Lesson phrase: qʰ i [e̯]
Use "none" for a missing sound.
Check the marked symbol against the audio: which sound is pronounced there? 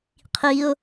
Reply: o̯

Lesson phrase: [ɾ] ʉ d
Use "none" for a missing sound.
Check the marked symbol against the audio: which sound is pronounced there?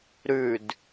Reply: ɾ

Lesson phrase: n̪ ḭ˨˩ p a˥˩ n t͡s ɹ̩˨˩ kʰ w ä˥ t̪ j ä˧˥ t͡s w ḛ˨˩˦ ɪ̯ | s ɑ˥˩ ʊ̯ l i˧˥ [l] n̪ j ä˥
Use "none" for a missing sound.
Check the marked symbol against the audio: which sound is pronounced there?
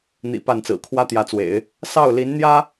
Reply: n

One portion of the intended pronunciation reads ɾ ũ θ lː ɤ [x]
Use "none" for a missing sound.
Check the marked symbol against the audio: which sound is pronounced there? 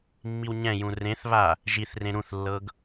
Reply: ɡ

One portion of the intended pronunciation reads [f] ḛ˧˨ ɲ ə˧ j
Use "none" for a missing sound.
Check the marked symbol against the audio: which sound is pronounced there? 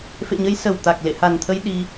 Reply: f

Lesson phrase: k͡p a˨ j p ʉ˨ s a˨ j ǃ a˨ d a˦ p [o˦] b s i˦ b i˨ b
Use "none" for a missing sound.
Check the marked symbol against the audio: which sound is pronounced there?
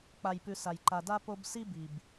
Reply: o˧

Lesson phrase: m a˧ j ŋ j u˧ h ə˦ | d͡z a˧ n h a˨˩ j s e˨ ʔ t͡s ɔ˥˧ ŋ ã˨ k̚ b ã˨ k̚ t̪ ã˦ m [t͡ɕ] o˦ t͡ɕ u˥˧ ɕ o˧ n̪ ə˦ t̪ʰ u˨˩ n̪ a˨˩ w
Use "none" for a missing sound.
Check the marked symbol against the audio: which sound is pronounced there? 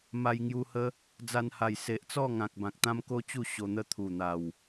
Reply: k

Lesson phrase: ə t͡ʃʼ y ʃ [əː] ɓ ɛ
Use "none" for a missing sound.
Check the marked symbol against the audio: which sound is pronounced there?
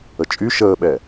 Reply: əː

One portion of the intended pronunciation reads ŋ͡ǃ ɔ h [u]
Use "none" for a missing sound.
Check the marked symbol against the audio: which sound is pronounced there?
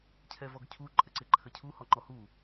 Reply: u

